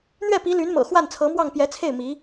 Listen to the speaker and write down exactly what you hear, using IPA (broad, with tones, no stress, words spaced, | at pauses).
n̪ɥɛ˥˩pi˧˥ ly˧˥nmɤ̰˨˩ xwa˥˩nt͡sʰɤ˧˥mwɑ˥˩ŋ pjɛ˧˥t͡sʰe˥˩ɪ̯ mi˧˥